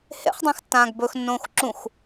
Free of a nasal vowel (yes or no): no